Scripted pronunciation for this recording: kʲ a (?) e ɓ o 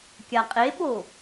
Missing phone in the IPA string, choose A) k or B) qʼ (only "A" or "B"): B